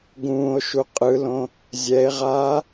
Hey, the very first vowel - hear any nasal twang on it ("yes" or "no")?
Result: yes